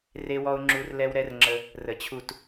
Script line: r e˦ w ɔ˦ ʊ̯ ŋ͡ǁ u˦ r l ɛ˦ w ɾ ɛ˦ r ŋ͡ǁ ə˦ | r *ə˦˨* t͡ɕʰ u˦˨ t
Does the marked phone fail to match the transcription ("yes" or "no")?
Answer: yes